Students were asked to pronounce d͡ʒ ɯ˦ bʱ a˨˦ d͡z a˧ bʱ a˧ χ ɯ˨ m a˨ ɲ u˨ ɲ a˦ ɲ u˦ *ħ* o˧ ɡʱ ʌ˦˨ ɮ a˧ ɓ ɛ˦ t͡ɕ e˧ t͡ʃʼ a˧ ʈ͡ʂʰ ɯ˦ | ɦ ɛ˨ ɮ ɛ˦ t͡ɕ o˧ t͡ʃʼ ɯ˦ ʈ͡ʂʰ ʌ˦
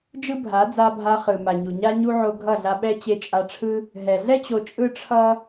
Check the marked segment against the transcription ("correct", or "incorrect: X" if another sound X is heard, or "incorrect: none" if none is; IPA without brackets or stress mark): incorrect: ʕ